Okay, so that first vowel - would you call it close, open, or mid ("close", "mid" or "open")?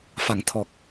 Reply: open